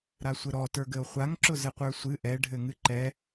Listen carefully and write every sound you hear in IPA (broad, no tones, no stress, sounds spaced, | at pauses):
ɾ a sʷ ɘ ɾ ɔ t ə˞ ɡ ɘ o̯ χʷ a ŋ ǁ ʊ z ɘ qʷ ə˞ sʷ ɨ ʔ ɛ ɖʱ ɘ ŋ ɨ ǃ ɛ